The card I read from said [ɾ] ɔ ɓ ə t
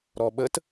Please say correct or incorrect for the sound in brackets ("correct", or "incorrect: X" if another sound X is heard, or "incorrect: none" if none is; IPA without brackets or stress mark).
correct